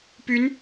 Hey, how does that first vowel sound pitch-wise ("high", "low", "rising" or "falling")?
rising